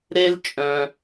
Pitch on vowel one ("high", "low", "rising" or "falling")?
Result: high